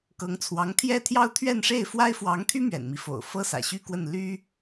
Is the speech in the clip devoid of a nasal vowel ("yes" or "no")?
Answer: yes